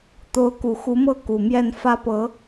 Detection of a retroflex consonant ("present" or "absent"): absent